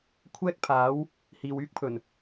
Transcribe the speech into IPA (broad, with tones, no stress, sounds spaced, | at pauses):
kʷʰ ɛː˥ k̚ pʰ aː˨˥ w | h iː˨ w yː˥ k̚ pʰ ɵ˨˩ n